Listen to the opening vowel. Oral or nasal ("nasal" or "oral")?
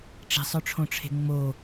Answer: oral